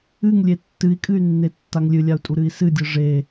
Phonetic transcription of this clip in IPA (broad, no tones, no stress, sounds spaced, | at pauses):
ɨ ŋ lʲ e tː ɨ i̯ kʼ ɨ y̯ nː e tː a ŋ lʲ ɨ lʲ a u̯ tʼ u ɾ ɨ i̯ s ɨ dʲ ɯ ʐ e